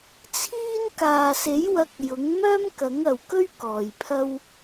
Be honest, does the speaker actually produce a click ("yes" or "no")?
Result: no